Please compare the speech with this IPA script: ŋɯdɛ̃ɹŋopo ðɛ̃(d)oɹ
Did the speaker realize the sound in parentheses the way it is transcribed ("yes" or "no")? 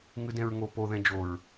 no